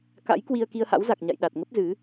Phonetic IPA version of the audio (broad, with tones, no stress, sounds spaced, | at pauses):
k a̰˧˥ j k w i˧ ə̯ k i˧ ə̯ h a̰˧˥ w z a˨˩ k̚ ɲ a̰˧˨ j ɗ a˨˩ t̚ ŋ ə˦˥ p̚ z ɨ˨˦